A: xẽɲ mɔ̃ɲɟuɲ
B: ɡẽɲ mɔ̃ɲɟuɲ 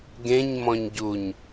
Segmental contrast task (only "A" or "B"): B